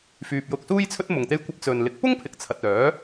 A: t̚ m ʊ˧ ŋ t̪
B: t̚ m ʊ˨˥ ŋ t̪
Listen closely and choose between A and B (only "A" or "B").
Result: A